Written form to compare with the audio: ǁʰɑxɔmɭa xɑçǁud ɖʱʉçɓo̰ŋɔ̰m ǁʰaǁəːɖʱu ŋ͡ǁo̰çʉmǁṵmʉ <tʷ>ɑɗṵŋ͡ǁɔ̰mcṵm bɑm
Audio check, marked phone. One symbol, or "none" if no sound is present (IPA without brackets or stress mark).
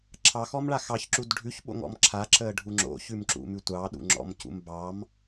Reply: tʷ